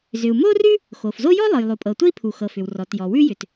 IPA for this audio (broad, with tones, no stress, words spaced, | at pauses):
zʏ˩u̯mo˥rʉ˥ | xo˩fzo˥ jɔ˥lˠɤ˩jlˠo˩pʼɤ˩ tʷə˥i̯pʰu˩xɤ˩ fʏ˩wrɔ˩tjɔ˩ wʉ˥jʏ˩t